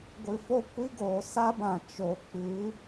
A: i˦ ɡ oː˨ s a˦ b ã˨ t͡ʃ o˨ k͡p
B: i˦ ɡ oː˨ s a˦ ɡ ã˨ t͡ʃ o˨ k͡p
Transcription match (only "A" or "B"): A